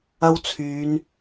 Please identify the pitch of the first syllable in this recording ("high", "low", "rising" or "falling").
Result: high